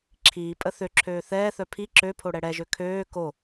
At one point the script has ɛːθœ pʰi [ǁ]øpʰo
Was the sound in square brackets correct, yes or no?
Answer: yes